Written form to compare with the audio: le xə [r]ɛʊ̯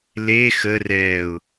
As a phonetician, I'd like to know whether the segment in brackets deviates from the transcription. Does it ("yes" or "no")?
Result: no